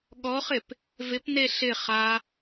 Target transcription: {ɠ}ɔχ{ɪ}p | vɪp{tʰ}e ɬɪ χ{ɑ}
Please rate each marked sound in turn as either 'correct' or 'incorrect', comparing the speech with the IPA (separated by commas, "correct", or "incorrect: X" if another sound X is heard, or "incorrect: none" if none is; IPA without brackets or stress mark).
correct, correct, incorrect: n, incorrect: a